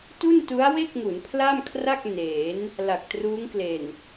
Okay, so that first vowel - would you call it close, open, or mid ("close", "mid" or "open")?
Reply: close